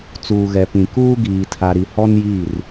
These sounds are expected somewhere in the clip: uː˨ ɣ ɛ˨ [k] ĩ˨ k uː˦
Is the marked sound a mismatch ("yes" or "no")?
yes